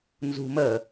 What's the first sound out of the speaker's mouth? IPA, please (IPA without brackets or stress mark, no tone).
n